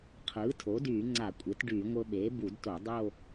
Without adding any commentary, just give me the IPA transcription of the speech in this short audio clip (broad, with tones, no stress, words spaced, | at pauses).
qʰɯː˩˥tʰo˩˥dyː˧˩˧ŋ͡ǀa˧˩˧ kʷʼe˩˥tɖyː˧˩˧ ŋʷɤ˧ɓeː˩˥ bu˧˩˧dto˧˩˧ dˤo˥˧